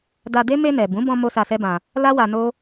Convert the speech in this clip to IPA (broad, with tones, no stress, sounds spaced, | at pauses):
d a˧ d e˦ m e˧ n ɛ˨ b ũ˨˦ b ɔ̃˧ m o˦ s a˧ s ɛ˦ b ã˧ | l a˦ w a˧ n o˦